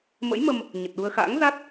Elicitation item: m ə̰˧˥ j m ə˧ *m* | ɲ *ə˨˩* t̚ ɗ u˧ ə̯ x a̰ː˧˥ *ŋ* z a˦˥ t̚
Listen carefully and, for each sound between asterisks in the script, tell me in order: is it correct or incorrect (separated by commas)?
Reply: correct, correct, correct